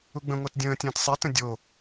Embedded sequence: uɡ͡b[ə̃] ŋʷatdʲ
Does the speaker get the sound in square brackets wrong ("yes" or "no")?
no